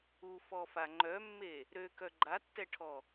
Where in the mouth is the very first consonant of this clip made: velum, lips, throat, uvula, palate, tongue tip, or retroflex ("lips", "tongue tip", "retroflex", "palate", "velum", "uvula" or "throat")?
lips